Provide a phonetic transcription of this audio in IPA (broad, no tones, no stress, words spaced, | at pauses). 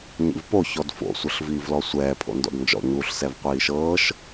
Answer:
ɲḭvpo çɔdfo̰ sʷɤɬviːvlɔsʷɛː pʰo̰ndɔ̰dnd͡ʒɔ̰ ɲuːɬsɛvqʷiːʃɤːʃ